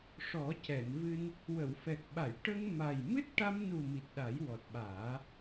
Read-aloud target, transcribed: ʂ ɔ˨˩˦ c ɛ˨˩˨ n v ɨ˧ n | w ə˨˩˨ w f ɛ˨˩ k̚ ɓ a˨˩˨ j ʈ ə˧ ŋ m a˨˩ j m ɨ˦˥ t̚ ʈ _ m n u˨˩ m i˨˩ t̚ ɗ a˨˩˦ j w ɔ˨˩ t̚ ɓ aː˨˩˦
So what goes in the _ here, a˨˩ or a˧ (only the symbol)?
a˧